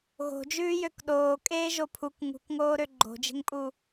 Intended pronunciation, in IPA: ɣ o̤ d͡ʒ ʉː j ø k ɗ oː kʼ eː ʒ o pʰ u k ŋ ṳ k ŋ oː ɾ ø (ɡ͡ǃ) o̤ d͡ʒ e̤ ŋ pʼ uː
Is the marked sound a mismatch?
no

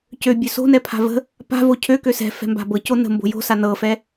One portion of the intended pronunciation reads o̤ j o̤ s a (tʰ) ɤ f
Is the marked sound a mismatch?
yes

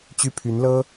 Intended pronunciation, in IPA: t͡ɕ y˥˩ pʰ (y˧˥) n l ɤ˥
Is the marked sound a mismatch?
no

